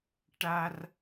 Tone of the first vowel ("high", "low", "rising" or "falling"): high